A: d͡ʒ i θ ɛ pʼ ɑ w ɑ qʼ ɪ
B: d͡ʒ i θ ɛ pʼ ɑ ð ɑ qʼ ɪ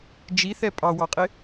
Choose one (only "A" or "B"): A